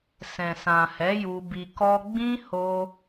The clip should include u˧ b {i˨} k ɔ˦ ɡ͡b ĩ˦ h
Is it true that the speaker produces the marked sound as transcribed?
no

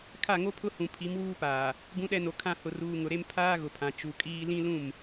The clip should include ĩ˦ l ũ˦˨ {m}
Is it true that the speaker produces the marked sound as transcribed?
yes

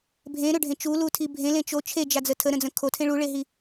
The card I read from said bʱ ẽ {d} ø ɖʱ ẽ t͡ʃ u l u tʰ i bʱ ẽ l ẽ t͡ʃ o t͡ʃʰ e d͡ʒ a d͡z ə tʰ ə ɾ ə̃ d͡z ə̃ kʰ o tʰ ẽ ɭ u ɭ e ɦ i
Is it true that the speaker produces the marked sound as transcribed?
no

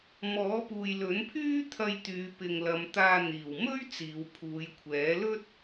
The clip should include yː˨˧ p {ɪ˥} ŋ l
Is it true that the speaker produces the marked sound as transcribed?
no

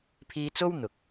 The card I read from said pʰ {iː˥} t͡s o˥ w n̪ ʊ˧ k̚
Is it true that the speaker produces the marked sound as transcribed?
yes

